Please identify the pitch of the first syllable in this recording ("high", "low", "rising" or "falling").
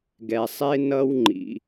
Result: low